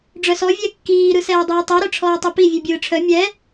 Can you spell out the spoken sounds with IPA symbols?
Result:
ɖ͡ʐœsɔ vʲɛkːiː ɾɯsɛːdˤiːtˤœ ɾœʈ͡ʂʰɔːtˤɛpi vʲʉbʲɯːʈ͡ʂʰœ mʲɛ

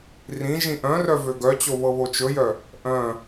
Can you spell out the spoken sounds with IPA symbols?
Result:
rĩ ʒĩʔœ̃rœ vøɡœt͡ɕo βɤβot͡ʃɵjœ | ʔœ̃

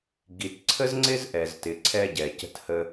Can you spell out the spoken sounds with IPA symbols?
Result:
ɡi˨tǀʰə˦z ŋ͡ǀɪ˦zʔɛ˨ztɪ˨ ǀʰɛ˧ɟɛ˨ cə̤˧thə˧

